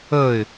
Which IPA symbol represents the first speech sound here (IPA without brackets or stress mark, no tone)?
ə